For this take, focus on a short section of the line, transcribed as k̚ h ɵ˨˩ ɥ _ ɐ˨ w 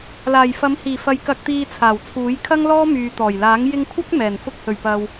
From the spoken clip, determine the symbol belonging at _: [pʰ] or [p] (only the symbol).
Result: p